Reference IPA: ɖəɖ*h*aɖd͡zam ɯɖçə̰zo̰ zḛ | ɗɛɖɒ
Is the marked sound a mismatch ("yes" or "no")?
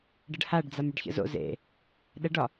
no